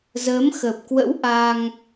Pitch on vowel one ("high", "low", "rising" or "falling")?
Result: rising